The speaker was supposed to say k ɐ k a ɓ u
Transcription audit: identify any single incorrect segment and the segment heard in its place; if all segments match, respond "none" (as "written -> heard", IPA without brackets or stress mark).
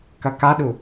ɓ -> ɗ